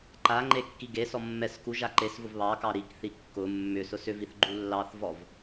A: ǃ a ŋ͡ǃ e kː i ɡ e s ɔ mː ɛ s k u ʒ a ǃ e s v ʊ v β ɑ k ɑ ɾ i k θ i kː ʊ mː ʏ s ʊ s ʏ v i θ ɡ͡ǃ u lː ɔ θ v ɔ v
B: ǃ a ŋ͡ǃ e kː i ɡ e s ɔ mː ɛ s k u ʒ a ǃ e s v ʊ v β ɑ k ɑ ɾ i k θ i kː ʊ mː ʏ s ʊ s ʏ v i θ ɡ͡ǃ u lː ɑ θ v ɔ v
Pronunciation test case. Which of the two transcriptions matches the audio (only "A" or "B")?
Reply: B